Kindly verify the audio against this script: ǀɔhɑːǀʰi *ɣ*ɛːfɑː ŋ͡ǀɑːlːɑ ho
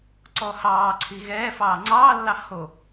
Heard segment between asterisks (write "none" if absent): ɣ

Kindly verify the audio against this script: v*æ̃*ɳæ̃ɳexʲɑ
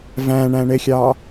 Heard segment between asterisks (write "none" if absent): æ̃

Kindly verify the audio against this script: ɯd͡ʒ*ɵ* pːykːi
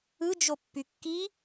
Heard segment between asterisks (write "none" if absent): o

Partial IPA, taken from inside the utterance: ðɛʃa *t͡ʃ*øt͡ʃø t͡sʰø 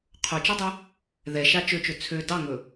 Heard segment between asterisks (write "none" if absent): t͡ʃ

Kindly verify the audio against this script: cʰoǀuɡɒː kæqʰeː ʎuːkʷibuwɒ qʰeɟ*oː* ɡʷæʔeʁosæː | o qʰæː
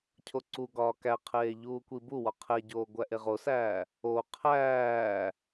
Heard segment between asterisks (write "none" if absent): oː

